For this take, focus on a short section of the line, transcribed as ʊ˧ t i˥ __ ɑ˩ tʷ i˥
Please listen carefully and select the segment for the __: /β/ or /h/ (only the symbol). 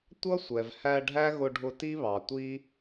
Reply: β